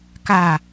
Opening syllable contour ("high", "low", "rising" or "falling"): falling